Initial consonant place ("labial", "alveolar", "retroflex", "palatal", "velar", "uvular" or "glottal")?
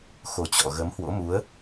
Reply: velar